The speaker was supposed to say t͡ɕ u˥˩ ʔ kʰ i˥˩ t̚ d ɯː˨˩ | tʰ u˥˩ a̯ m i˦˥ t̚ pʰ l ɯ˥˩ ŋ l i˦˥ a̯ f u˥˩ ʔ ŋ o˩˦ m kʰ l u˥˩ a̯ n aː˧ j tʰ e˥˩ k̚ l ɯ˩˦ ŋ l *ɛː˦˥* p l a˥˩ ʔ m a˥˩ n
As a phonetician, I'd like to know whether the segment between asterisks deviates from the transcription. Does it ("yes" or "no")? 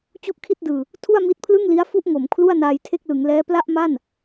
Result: no